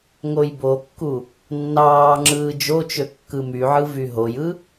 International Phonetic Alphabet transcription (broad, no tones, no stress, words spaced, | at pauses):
ŋojbokːu | nːɑːŋ͡ǁɯː d͡ʒot͡ʃø kːɯmyʕɯ vyɦojɯ